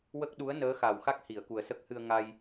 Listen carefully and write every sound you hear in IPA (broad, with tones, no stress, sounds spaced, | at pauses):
w ə˦˥ k̚ ɗ u˧˥ ə̯ n əː˧˥ x a˨˩ w x a˦˥ k̚ h i˨˩˨ ə̯ k u˨˩ ə̯ s ə˦˥ k̚ h ɨ˧ ə̯ ŋ a˧ j